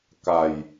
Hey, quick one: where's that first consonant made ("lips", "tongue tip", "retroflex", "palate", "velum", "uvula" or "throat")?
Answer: velum